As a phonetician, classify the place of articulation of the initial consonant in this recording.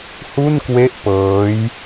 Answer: glottal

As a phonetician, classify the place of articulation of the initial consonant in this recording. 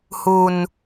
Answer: glottal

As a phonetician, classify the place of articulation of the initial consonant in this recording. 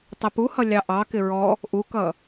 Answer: alveolar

